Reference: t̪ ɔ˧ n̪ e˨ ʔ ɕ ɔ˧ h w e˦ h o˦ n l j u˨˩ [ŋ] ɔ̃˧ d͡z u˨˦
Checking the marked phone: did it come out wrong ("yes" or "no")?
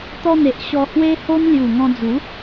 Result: no